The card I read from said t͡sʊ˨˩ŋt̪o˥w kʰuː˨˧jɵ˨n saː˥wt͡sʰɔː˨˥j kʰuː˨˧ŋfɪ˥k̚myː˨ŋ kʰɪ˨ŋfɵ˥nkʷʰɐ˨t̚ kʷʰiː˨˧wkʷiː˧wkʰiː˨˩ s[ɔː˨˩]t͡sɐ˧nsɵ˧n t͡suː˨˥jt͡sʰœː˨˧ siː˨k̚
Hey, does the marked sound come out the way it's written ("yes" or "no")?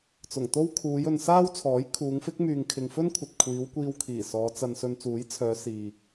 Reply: no